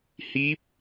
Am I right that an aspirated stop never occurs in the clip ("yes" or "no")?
yes